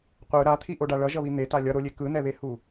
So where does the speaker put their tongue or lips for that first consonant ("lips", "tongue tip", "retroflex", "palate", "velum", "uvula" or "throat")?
uvula